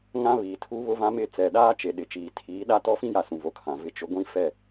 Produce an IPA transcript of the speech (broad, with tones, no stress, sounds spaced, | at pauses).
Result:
ŋ ã˦ β iː˨ tʰ uː˦ β ʊ˦ v ã˦ m ɪ˦˨ t͡s ɛ˨ ɗ aː˦ t͡ʃ e˨ ɗ ɪ˨ t͡ʃ iː˨ tʰ iː˨˦ ɗ a˦ t ɔ˦ f ĩ˦ j a˨ s ũ˨ v o˨ kʰ ã˨ v ɪ˦˨ t͡ʃ ʊ˦ ɡʷ ĩ˦ f ɛ˦˨